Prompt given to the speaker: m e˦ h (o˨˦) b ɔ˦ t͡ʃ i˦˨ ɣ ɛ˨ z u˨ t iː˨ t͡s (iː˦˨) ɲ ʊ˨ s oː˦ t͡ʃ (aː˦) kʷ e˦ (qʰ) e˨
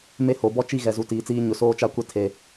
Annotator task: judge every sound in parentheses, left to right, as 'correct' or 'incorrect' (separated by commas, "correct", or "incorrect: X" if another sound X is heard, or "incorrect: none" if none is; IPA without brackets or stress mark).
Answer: correct, incorrect: iː˦, incorrect: a˦, incorrect: tʰ